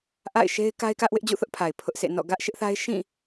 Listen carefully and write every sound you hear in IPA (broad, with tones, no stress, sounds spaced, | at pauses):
ʔ a̰˦˨ ɪ̯ ʃ e˦ ɪ̯ k a˦ ɪ̯ k ä˦ ʔ w ɪ˦ ʔ d͡ʑ ṵ˦˨ θ ʊ˦ ʔ pʰ a˨ ɪ̯ pʰ ʊ˦ ʔ sʰ ḛ˦˨ n ɔ̰˦˨ ɡ ä˦ ʔ ʃ ɪ˦ ʔ θ a˦ ɪ̯ ʃ ĩ˦˨